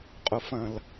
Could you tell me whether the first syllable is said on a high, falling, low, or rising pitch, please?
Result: low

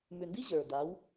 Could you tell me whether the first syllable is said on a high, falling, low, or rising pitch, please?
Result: low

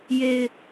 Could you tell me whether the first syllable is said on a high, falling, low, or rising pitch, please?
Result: low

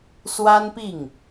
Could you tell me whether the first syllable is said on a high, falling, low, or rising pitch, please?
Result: high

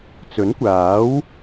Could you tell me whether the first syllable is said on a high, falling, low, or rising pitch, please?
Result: rising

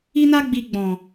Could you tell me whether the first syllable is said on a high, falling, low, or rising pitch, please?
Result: high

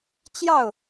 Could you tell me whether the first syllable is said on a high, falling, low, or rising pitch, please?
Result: falling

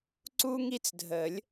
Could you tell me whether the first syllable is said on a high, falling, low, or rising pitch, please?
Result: high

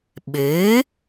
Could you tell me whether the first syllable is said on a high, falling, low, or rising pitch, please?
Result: rising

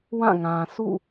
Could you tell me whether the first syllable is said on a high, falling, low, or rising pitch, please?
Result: falling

